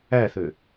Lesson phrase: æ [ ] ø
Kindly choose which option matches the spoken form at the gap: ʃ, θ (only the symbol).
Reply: θ